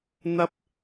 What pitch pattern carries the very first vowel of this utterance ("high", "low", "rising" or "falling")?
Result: high